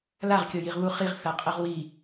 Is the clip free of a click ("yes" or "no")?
yes